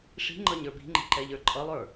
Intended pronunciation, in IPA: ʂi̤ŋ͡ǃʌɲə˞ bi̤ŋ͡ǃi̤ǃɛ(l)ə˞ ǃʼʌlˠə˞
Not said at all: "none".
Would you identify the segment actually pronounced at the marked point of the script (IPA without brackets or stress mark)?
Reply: ʎ